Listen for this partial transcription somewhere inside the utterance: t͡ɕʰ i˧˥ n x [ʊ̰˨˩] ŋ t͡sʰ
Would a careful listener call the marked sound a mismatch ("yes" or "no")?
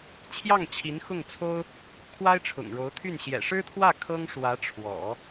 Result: yes